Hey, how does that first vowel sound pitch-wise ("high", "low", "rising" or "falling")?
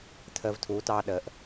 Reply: high